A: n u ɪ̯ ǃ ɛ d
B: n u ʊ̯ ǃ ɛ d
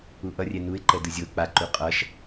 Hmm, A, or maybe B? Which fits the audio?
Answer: A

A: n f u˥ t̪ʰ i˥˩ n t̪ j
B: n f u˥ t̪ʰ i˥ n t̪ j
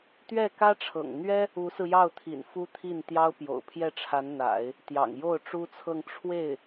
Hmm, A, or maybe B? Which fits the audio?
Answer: A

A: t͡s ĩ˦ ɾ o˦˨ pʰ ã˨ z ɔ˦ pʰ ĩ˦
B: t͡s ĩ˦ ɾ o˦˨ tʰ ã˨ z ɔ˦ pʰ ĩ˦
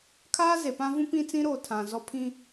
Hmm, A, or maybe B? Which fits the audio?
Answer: B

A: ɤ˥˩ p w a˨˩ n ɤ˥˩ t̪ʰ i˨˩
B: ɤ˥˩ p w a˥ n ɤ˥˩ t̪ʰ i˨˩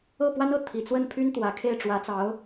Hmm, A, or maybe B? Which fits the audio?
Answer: B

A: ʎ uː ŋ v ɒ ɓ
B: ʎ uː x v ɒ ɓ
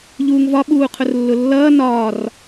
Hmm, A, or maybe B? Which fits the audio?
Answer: A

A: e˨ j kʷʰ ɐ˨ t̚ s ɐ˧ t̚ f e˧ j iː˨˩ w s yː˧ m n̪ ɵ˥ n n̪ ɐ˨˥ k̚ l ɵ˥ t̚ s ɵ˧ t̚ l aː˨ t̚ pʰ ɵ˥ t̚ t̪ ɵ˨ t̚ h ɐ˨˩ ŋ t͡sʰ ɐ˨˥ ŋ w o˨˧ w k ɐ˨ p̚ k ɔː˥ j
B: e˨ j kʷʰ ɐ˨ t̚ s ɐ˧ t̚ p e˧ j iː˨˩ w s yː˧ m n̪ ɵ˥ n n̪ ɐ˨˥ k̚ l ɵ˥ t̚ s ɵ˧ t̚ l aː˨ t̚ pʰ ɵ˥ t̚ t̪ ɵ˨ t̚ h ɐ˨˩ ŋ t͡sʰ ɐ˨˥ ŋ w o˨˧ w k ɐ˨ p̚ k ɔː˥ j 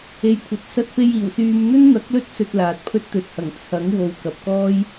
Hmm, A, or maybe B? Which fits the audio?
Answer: B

